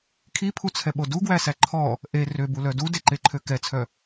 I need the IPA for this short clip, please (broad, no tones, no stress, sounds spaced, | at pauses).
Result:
kʰ i pʰ u t͡sʰ ɛ ɓ o d u ɡ w æ s æ ǃʰ ɔ | ʔ e r ø b u l œ d u d e ǃ e ǃʰ ø k ɛ t͡sʰ œ